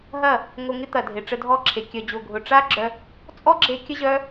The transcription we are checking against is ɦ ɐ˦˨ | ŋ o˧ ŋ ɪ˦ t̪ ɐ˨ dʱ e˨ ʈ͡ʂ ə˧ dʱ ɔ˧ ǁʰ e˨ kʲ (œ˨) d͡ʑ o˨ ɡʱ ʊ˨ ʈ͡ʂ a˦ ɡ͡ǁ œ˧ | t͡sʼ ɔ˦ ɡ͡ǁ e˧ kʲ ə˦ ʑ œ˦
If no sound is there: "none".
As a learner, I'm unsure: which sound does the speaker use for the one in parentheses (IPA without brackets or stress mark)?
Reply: œ˨